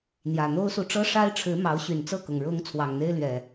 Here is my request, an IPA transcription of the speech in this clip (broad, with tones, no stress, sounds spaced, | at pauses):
n̪ j ä˨˩ n̪ o˦ ʊ̯ s u˨ ʈ͡ʂ ɤ˦ ʂ a˦ ɪ̯ ʈ͡ʂʰ ɻ̩˨˦ m ɑ˨˦ ʊ̯ ɕ y˨˩ n t͡s ɤ˥˨ k ʊ˩ ŋ ɻ ʊ˨˦ ŋ t͡sʰ w ɑ˨˩ ŋ n̪ e˦ ɪ̯ l ɥ ɛ˨˩